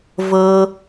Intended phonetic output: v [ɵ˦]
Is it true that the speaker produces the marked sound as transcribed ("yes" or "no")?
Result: no